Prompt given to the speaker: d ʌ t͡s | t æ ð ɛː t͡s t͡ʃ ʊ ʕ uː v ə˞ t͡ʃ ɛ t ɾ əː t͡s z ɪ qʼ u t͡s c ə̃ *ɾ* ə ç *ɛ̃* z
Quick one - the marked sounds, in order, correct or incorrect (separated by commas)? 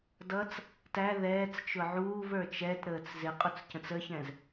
incorrect, correct